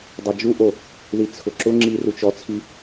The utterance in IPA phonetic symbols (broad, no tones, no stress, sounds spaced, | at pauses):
dˤ a d͡ʒ u ʔ o | ð i t͡sʰ ʊ ǁ ʊ ŋ͡ǁ i r u t͡ʃ ɔ t͡sʰ i